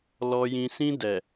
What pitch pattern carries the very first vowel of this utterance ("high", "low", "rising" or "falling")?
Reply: low